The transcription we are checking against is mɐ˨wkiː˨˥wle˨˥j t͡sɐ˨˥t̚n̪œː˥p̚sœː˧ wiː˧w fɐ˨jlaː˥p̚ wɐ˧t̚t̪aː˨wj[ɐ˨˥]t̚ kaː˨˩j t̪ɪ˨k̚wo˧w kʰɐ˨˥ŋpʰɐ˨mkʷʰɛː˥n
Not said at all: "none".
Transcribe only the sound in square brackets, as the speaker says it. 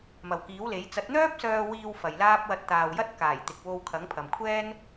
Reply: ɐ˥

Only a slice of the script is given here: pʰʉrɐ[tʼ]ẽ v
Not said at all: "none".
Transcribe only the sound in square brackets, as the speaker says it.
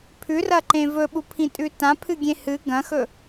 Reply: ǃ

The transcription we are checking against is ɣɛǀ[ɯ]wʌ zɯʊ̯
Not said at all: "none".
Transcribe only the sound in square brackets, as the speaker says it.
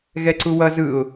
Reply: u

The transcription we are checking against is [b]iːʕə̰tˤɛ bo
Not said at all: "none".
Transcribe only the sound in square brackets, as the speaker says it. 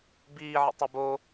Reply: b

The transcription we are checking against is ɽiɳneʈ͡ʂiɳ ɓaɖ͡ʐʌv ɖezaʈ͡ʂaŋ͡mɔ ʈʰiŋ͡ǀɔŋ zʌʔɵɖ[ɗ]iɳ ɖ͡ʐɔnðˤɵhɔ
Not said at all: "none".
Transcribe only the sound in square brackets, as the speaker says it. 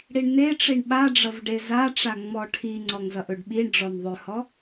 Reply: ɓ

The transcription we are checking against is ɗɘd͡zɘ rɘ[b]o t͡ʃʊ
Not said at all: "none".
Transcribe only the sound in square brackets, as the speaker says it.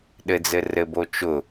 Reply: b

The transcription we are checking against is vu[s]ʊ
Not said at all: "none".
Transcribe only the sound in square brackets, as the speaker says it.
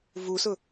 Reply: s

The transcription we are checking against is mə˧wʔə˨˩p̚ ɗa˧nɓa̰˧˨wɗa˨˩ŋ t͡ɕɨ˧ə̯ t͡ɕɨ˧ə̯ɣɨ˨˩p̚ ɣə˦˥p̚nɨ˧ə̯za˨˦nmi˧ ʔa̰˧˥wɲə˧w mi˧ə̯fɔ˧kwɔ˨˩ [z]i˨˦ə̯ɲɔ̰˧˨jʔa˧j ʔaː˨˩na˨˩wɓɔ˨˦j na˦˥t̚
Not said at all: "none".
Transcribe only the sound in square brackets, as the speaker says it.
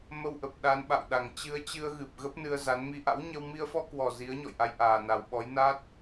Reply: z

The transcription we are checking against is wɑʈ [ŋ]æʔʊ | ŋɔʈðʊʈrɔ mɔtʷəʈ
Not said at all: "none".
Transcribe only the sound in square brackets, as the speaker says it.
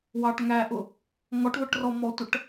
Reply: ŋ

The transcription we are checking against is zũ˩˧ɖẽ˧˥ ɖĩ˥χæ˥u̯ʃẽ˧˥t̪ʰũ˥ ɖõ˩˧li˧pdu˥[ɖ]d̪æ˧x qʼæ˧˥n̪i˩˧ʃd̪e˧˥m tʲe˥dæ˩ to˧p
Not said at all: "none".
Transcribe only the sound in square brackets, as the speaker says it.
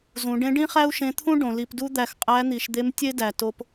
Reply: none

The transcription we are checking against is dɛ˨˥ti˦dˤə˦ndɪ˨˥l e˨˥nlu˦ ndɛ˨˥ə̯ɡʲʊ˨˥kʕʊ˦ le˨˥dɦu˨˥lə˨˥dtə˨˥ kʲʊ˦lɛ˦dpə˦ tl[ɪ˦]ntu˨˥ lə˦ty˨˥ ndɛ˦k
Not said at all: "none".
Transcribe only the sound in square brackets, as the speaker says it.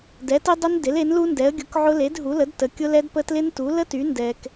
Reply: ɪ˦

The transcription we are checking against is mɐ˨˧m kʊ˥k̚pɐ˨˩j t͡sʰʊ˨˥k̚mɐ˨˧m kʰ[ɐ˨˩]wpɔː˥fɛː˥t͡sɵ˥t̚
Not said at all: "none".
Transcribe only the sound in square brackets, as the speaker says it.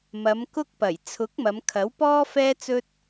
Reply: ɐ˨˥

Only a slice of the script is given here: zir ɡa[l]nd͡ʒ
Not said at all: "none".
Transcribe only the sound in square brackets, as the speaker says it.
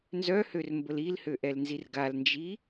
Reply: l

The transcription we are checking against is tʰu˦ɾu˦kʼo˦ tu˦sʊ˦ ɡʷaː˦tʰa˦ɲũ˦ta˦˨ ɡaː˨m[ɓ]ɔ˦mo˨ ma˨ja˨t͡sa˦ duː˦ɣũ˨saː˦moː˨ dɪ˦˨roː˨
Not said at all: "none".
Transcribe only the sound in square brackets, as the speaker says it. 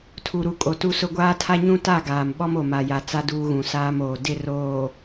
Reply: ɓ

